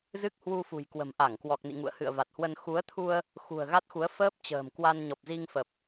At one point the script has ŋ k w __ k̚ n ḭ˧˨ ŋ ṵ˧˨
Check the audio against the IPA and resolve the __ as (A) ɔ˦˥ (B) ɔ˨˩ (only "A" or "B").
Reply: B